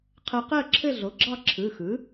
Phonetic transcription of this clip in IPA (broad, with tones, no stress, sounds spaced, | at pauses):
qʰ ɜ˧ q ɜ˥˧ ǁʰ ɘ˥˧ ɮ o˩˥ ɡ͡ǁ ɑ˥˧ ǁʰ ɯ˩˧˩ x ɯ˩˥